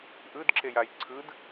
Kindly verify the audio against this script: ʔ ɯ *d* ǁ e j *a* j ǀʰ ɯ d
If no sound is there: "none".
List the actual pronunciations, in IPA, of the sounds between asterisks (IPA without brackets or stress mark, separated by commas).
d, a